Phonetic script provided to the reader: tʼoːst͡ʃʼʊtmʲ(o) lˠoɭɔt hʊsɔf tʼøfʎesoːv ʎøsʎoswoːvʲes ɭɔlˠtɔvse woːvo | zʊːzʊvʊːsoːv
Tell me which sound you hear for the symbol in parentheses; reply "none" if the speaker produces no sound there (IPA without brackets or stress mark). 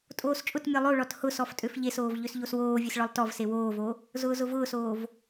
ɔ